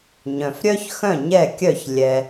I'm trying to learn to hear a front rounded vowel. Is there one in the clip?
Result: yes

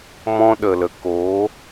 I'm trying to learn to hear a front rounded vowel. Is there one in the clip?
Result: no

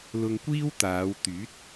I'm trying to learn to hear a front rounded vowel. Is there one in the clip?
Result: yes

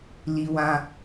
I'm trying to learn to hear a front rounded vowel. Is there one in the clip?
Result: no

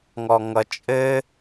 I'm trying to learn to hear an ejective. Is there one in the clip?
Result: yes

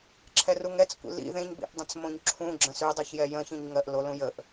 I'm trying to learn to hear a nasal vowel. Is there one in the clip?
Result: yes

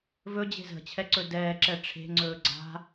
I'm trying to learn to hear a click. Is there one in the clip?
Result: yes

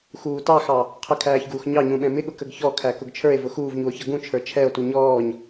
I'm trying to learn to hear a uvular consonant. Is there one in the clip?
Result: yes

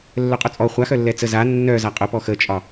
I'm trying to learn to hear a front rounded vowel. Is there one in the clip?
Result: yes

